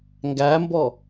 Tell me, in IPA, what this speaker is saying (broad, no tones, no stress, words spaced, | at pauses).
ŋɡæmbɔ